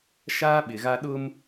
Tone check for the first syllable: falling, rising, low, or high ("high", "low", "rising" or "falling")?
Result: high